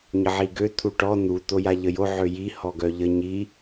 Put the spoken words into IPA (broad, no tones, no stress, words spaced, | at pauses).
ɲəʕiɡø t̪ʰuʈɔ n̪u t̪ojaʎəjo ʕøji hɔɡœʎə ɲi